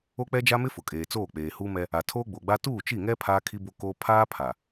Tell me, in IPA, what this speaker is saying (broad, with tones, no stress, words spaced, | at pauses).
o˦k͡pɛ˦d͡ʒa˦mɪ˦ fʊ˨kʼeː˨t͡soː˦˨ k͡peː˨huː˦mɛ˦ | a˨tʰoː˦ɡ͡bo˨ɡ͡ba˦ tuː˦˨t͡ʃi˦˨ŋɛ˦ pʰaː˦kʰi˦bo˦koː˦ pʰaː˦ pʰa˨